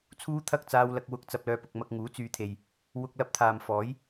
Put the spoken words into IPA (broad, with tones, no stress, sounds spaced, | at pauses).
t͡sʰ uː˥ t̪ʰ ɐ˥ k̚ t͡s aː˧ w l ɐ˨ k̚ w ʊ˧ k̚ t͡s ɐ˨ p̚ l œː˨ p ʊ˨ k̚ m ɐ˧ k̚ ŋ uː˨˥ t͡s yː˨˧ t̪ʰ e˨ j | w ʊ˧ k̚ l ɐ˧ p̚ t̪ʰ aː˨ m f ɔː˨˥ j